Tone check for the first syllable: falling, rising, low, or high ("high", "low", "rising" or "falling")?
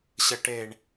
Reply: low